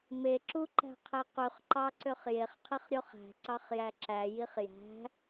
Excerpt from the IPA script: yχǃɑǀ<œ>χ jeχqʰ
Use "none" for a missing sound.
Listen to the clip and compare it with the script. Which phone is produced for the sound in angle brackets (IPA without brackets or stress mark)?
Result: ø